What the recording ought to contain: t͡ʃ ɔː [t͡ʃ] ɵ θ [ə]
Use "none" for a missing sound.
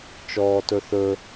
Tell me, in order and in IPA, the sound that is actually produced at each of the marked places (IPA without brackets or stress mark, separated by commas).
t, ɵ